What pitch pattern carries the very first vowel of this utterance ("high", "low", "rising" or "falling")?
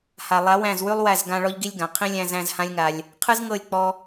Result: low